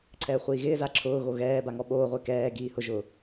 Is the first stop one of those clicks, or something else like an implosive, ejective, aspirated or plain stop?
click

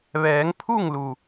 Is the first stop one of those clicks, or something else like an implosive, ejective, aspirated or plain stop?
aspirated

